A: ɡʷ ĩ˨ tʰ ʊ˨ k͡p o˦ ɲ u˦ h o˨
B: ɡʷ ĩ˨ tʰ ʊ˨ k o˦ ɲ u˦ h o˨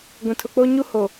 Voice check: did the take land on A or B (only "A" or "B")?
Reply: A